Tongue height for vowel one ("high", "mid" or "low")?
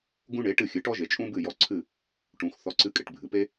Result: high